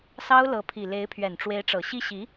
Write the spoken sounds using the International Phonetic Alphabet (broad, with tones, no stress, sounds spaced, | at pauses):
s ɑ˥ ʊ̯ l ɤ˧˥ pʰ i˨˩ l e˧˥ ɪ̯ pʰ ɥ ɛ˨˩ n ʈ͡ʂ w e˧˥ ɪ̯ ʈ͡ʂ ɤ˨˩ ɕ i˥˩ ɕ i˧˥